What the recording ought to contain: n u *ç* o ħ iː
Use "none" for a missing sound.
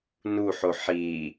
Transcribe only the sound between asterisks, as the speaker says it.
ħ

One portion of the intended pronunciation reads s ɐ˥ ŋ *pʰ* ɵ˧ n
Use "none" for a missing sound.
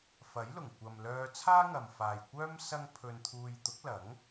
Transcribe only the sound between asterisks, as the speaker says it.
pʰ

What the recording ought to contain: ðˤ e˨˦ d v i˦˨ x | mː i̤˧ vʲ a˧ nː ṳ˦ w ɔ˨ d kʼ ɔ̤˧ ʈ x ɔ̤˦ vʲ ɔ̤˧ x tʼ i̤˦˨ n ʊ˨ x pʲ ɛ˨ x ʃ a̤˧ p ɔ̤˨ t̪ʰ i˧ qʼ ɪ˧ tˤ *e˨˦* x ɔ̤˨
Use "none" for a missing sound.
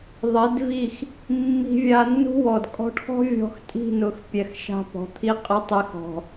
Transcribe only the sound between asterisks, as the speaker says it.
e˨˦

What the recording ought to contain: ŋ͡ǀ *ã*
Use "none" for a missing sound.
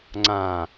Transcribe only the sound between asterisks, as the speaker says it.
ã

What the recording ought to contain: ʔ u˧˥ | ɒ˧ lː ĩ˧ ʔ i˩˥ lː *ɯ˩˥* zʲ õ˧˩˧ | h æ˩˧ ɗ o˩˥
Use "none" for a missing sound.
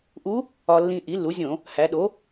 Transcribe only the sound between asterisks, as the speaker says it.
u˩˥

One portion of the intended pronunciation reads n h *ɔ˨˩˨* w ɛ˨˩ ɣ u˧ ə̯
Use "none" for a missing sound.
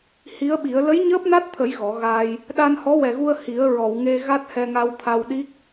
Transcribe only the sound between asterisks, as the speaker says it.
ɔ˧˥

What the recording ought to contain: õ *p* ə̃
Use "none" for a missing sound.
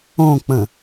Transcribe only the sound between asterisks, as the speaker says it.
k͡p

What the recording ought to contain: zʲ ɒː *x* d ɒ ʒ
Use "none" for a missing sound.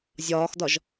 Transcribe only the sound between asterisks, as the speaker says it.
x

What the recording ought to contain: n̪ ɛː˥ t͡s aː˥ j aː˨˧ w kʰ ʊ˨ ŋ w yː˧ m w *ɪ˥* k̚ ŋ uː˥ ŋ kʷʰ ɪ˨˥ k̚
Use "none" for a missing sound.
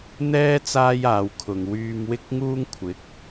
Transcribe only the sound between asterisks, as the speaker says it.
ɪ˥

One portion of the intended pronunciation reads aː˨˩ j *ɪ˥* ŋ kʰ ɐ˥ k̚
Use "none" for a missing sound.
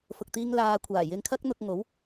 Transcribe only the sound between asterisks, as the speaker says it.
ɪ˧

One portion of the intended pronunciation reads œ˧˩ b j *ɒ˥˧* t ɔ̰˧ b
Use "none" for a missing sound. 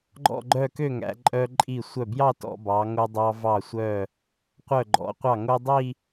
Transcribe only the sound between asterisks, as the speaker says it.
ɑ˥˧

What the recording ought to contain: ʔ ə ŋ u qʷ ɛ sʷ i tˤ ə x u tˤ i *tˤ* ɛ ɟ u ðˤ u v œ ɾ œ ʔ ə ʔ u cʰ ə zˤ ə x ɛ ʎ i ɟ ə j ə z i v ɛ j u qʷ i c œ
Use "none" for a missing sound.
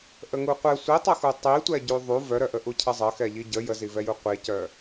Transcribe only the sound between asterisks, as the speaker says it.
tʷ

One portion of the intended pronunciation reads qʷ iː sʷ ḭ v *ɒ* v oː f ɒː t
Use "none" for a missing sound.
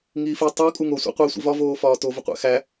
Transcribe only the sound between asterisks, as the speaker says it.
ɒ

